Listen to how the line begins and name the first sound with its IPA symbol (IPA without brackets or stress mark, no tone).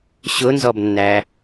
ɕ